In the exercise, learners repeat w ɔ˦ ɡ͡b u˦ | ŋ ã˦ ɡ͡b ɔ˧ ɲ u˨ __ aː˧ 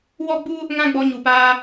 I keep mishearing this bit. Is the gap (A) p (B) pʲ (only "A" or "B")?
A